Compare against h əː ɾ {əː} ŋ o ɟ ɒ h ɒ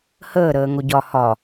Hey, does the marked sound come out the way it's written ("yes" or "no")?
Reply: yes